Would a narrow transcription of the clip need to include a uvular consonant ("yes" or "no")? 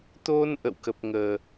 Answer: no